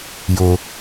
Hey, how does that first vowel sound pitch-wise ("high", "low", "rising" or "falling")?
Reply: low